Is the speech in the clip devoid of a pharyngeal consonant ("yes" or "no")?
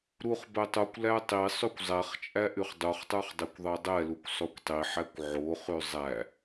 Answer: no